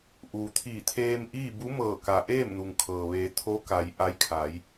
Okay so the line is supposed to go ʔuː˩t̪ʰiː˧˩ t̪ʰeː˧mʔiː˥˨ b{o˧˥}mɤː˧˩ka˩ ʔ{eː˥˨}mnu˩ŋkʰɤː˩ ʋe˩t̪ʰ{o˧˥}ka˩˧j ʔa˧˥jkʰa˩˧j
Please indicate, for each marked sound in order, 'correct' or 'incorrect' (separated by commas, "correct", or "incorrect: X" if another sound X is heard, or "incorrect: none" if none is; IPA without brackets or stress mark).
incorrect: u˧˥, correct, correct